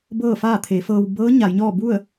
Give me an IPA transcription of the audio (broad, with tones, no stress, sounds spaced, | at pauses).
b ɤː˥˨ f aː˥˨ t̪ʰ e˩˧ f ɤː˧ w b ɤː˧˥ ɲ a˩˧ j ɲ ɔː˥˨ b u˥˨ ə̯